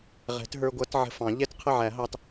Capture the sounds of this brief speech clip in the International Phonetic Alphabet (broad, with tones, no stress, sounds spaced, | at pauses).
ʁ ɛ̤˨˩˦ t ɦ ə˞˧ ɡʷ ʌ˨˥ t ʕ ə̤˧ f ɑ̃˨˩˦ ʎ ɛ˥˧ t qʰ ə˥˩ ʕ æ˨˩˦ ɦ ɑ˧ t